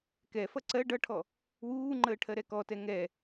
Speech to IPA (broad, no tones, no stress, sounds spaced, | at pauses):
k ɛ f ʌ ǀ ɜ ɖ ʌ ʈʰ ɔ | w uː ŋ͡ǃ əː ʈʰ ɜ ɾ ɛ k ɔ t ɛ ŋ ɛ